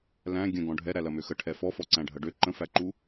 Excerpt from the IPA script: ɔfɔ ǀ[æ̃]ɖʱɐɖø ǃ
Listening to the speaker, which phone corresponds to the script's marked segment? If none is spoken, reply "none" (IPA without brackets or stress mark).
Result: æ̃